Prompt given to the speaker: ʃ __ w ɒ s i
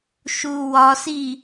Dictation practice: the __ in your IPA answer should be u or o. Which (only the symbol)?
u